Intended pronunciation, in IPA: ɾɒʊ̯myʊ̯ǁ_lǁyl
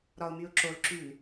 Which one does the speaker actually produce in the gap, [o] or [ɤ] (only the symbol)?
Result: o